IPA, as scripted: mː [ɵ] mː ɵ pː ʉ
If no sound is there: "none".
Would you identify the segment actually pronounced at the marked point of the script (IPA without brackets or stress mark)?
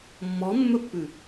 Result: ɔ